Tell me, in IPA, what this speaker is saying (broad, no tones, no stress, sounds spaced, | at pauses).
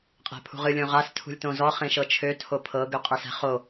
qʼ æ̤ pʰ ṳ ʁ ɨ lʲ õ ʁ a s tʰ ṳ lʲ t õ z ɔ χ ẽ ʃ ɤ t͡ʃʰ ø tʰ o pʰ ɤ ɡ ø qʼ ɤ s æ̤ χ o